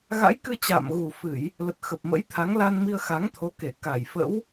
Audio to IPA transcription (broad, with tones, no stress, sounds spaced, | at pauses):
ɣ a̰˧˥ j k ɨ˧ t͡ɕ a̰ː˧˨ m ɣ u˨˩ f ɨ˧˩˨ j | l ə˨˩ t̚ x ə˨˩ p̚ m ə̰˧˥ j t̪ʰ a˨˦ ŋ l a˧ n m i˧ ə̯ x a˨˦ ŋ t̪ʰ o˨˦ k e˧˩ k a˧˩ j f ə̰˧˥ w